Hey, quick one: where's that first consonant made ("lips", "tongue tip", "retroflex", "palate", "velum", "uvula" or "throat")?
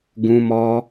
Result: velum